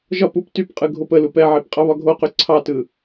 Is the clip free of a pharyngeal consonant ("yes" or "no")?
no